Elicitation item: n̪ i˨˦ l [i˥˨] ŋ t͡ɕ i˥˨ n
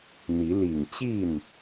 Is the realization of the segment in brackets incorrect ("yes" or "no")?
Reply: yes